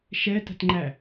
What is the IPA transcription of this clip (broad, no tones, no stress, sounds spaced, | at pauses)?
ʃ ɛ t ə̤ t ŋ͡ǃ æ